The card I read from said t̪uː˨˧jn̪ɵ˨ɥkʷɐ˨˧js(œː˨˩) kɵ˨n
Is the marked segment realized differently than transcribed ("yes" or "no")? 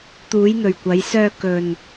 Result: yes